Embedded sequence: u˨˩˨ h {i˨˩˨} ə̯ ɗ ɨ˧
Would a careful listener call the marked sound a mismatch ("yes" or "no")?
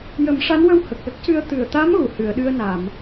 yes